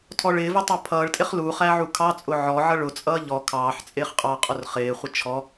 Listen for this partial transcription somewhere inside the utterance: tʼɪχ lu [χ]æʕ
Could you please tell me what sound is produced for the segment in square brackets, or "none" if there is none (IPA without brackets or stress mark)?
χ